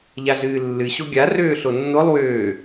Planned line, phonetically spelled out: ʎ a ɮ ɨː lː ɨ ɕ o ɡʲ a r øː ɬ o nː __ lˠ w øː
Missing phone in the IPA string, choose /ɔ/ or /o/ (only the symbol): o